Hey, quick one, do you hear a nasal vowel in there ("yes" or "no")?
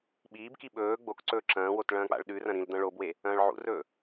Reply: yes